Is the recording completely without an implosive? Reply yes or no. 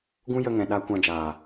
no